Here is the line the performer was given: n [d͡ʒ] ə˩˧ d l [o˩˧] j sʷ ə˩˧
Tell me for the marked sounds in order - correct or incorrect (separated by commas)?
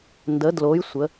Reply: incorrect, correct